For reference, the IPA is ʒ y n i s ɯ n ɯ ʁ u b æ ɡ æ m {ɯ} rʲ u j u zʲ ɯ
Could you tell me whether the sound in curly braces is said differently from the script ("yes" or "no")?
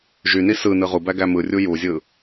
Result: no